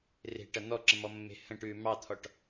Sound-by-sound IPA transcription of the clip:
r e̤ ʈ ɐ n̪ ɔ ǁ ə̃ m ɔ mː e̤ h ə̃ ʈ ʉː m ɑ t̪ʰ ɔ ʈ

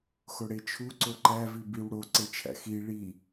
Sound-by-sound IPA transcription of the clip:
x o ɽ e t͡ʃʰ u ǀ o ǃ æ v i b i w ɽ o ǀ e t͡ʃʰ æ̰ x i ɭ i

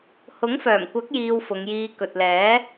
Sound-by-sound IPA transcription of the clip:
h ʊ˨˥ ŋ f œː˨˩ m kʷ ɐ˨˥ k̚ j iː˧ w f ʊ˨˧ ŋ j iː˧ k ɵ˨ t̚ l ɛː˨˥

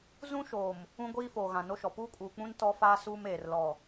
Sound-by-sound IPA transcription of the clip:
z ũ˦ ʃ oː˨ m | ũ˦ ɡʷ iː˦ f oː˨ ɣ ã˨ n o˦ ʃ ɔ˨ p uː˦ kʼ uː˨ k͡p ũ˦ n t ɔ˦ f aː˦ s uː˦ m eː˨ r l ɔ˨

